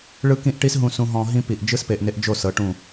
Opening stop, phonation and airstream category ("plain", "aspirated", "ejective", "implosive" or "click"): plain